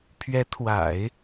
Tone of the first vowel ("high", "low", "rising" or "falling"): rising